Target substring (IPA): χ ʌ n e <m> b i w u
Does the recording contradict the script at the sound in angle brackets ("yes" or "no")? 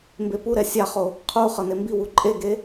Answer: no